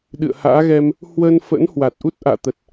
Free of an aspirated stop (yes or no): yes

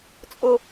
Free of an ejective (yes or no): no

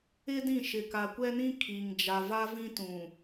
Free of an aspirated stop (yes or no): no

